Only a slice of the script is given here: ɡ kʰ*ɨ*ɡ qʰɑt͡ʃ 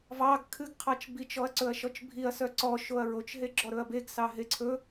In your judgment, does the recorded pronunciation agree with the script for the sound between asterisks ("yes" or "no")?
yes